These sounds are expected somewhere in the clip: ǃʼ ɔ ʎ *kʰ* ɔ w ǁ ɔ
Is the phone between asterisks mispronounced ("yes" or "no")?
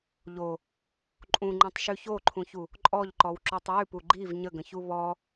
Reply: yes